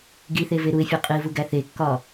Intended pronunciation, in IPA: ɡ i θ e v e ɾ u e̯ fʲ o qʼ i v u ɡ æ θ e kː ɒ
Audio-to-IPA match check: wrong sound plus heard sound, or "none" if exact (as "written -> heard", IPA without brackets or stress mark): none